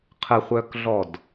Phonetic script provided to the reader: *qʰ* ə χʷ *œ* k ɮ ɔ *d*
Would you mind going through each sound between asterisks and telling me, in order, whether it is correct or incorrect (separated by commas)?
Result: correct, correct, correct